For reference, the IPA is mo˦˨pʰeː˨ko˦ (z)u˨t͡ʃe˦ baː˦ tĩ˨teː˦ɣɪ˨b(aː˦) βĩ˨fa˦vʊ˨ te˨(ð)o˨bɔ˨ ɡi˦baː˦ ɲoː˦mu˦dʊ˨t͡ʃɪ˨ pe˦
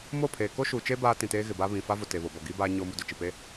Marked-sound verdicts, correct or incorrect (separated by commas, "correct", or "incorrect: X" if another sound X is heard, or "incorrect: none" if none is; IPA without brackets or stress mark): incorrect: ʃ, correct, incorrect: β